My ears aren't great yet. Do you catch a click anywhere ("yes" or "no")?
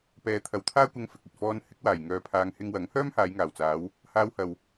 no